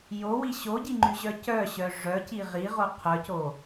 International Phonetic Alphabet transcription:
j o w i ɕ o ɟ i ŋ͡ǃ y ʑ œ c œ ɕ œ ʐ œ c i ʁ i ʁ o qʰ œ c o

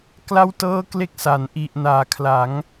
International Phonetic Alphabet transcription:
k l a˥˩ w t ɤː˥˩ k l e˦˥ k̚ s a˩˦ n ʔ i˨˩ ʔ n aː˩˦ kʰ l a˩˦ ŋ

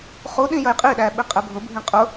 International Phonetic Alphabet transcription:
χ u ɗ ĩ j ə j qʼ i ɗ æ ɓ i qʼ ɛ bʱ ʊ bʱ ĩ qʼ ʊ

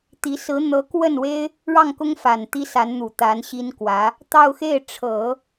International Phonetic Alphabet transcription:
t̪ i˧˥ s ɹ̩˧˥ n̪ ɤ˧˥ k w ə˥˩ n w e˥ ɪ̯ | ɻ ɑ˥˩ ŋ k ʊ˥ ŋ f a˨˩ n t̪ i˥ s a˧˥ n n̪ u˨˩ t̪ a˧˥ n ɕ i˥ n k w ä˧˥ | t̪ ɑ˥˧ ʊ̯ x e˥˩ ɪ̯ ʈ͡ʂʰ ɤ˨˩˦

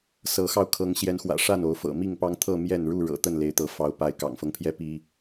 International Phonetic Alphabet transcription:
s ɤ˨˦ x ɑ˧ ʊ̯ kʰ ɤ˨˦ ŋ ɕ j ɛ˨˦ n x w ä̰˨˩ ʂ a˥˨ n o˨˦ ʊ̯ f ɤ̰˨˩ m i˥˨ ŋ p ɑ˦ ŋ t̪ʰ ɤ˥˨ m j ɛ˥˨ n ɻ u˥˨ ɻ ɤ̰˨˩ t̪ ə˥˨ n l e˨˦ ɪ̯ t̪ ɤ˨˦ f ɑ˨˦ ʊ̯ p a˨˦ ɪ̯ k ɑ̰˨˩ ŋ f ɤ˦ ŋ pʰ j ɛ˦ p i˦

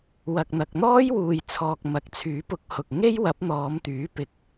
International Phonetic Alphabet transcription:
w ɐ˨ k̚ n̪ ɐ˨ k̚ n̪ ɔː˥ j w uː˨ j t͡sʰ ɔː˨ k̚ m ɐ˨˥ k̚ t͡sʰ yː˨˥ p ʊ˨˥ k̚ h ʊ˨ k̚ ŋ e˥ j w ɐ˨˥ p̚ n̪ ɔː˨˧ m t̪ yː˨˥ p ɪ˧ k̚

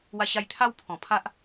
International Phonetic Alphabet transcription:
w a˧ ɕ a˧ j t̪ʰ a˦ w pʰ ɔ̃˨˩ pʰ a˦ ʔ

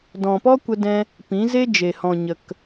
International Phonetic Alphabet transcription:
d ɔ̃˨ p ɔ˦ kʷ ə˧ d ɛ̃˧ | p ĩ˨˦ z e˦ d͡ʒ e˨ h ɔ̃˨ ɲ ə˨ k

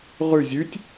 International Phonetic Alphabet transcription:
ʁ ʉ zʲ ʉ tʲ

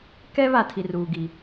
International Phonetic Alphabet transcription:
k ɛ˦ β a˨ tʰ i˨ r uː˨ ɡ i˨

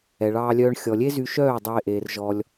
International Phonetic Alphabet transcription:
ɛ˨ ɭ ɑː˧ lʲ œː˧ ɳ xʲ ɔ˨ lʲ e˦ z y˧ ʃ œː˦˨ dˤ ɑ˧ e̯ ʔ eː˨ r ʒ ɔ˧ lʲ

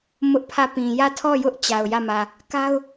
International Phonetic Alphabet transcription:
m ʊ˦ ʔ pʰ ä˦˨ p ĩ˨ j ä˦˨ tʰ ɔ˦˨ j ʊ˦ ʔ t͡ɕ a˨ ʊ̯ j ä˦˨ m ä˨ | k a˦ ʊ̯

